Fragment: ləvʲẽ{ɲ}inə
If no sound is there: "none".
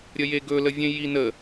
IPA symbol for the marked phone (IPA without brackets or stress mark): j